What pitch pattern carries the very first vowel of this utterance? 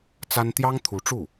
high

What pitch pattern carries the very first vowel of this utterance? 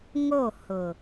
falling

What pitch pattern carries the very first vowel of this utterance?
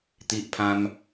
high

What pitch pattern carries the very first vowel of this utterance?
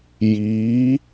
rising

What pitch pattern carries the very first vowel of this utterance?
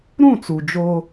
falling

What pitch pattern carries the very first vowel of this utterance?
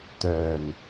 low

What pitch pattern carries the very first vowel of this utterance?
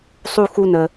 high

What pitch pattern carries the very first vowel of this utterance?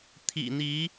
low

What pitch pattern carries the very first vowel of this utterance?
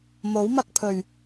rising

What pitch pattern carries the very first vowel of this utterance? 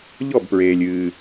falling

